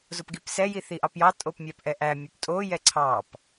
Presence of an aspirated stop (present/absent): present